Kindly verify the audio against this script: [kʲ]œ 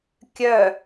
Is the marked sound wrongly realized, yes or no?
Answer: no